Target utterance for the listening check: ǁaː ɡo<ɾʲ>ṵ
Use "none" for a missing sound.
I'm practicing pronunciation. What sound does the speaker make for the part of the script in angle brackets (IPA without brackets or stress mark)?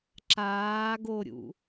ɾʲ